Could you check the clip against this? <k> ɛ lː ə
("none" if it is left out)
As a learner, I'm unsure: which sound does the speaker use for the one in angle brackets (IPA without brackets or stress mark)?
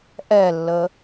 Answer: ʔ